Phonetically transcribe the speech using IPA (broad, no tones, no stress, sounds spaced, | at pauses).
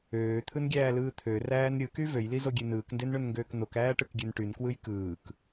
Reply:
øː t̪ʰ ɯ n ɡʲ æː l ɯː t̪ʰ ø r æː n ɾʲ ɯ k y v ø j l i z o ɡʲ e n ɯː k n d e n ɳ ø n ŋ ɡ øː k n̪ o k æː ʈ ɯ k ɡʲ ø n ʈ y n k w ɯ j k ɯː k